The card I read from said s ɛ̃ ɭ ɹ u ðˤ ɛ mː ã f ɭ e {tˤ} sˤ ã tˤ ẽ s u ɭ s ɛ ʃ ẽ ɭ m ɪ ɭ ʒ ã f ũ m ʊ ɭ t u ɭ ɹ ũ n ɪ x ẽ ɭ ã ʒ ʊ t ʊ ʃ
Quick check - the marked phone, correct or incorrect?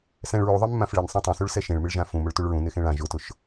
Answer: incorrect